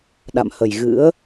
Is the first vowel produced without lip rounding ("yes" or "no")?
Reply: yes